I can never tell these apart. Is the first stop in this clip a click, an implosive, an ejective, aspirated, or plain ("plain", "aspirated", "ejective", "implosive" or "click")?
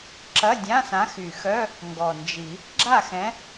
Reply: click